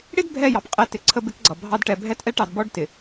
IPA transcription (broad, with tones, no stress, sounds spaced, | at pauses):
ɽ ɪ˦ d bʱ ɛ˦˨ j ɑ˨ p qʼ ɛ˨˦ t ɪ˨ ǀʰ ə˦ b ɪ˦ k ɡ͡ǀ ʌ˨ bʱ ɑ˦ d ʈ ɛ˨ bʱ ɛ˦ t ʔ ɛ˦ ʈ ɑ˨ d b ɔ˦ ɖ t ɪ˨